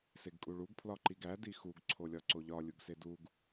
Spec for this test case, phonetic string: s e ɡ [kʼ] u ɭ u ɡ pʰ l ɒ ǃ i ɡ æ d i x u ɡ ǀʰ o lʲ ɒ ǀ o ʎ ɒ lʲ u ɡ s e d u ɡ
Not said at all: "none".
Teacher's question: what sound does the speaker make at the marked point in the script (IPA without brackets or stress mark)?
kʼ